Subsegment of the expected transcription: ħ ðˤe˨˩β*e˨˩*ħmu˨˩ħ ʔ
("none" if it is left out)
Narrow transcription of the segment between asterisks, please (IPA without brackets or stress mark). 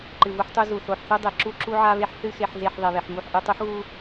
e˨˩